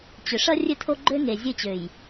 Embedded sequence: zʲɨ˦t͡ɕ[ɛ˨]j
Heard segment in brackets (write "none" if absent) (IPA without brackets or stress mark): ø˨